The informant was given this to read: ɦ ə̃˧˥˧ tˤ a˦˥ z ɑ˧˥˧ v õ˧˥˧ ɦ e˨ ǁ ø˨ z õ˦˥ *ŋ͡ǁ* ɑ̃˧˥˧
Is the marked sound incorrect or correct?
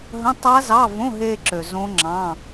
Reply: correct